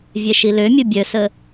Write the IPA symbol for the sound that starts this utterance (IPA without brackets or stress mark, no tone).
vʲ